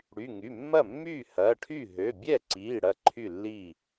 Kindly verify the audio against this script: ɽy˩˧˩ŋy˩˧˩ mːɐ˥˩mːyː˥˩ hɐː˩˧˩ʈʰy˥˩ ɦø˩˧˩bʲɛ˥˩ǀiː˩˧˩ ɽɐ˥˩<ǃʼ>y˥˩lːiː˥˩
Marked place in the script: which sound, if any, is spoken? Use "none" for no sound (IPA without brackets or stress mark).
ǃʰ